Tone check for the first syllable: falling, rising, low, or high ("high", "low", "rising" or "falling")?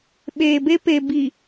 low